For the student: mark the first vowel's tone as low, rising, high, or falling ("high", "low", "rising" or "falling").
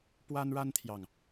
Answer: high